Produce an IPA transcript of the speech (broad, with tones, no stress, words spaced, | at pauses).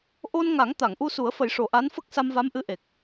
ʔo˧n ŋa˨˩˦ŋt̪a˨˩˨ŋʔu˧su˨˩˦ə̯ fə˨˩˦jʂo˨˩ʔa˧˥n fə˦˥k̚sa˧mva˧˥m ʔɨ˧˥ʔe˨˩k̚